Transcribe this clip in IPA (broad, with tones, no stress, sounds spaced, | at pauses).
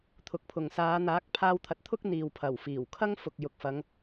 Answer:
t̪ʰ ʊ˨ k̚ pʰ ʊ˨ ŋ s aː˨˧ n̪ aː˨˥ k̚ pʰ aː˧ w t̪ʰ ɐ˨˥ t̚ t̪ʰ ʊ˥ k̚ n̪ iː˨ w pʰ ɐ˨˩ w f iː˨˩ w kʰ ɐ˥ ŋ f ʊ˨ k̚ j ʊ˨ k̚ f ɐ˨˧ ŋ